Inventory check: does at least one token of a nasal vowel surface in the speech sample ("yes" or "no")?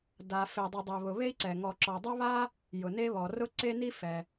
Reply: no